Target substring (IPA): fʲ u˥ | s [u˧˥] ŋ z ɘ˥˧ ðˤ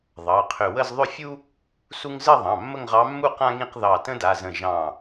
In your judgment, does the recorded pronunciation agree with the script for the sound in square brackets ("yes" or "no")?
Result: no